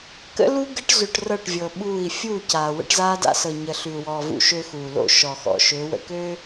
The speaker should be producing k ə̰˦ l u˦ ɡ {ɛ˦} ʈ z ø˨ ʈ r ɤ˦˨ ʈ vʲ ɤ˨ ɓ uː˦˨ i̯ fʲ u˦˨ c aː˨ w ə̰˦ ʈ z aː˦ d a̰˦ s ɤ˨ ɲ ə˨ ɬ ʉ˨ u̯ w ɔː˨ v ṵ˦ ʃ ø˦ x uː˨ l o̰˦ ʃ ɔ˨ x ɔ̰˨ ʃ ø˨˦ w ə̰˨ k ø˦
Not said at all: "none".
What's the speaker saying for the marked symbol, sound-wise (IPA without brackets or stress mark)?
ə˦